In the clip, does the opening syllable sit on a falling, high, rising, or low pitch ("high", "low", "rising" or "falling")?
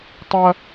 high